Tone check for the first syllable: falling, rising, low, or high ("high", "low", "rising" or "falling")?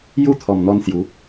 falling